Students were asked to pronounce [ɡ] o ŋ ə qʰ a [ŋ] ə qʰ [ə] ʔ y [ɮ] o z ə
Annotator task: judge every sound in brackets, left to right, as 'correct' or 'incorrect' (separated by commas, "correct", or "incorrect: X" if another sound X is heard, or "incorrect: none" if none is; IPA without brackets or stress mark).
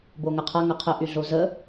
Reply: incorrect: b, correct, correct, correct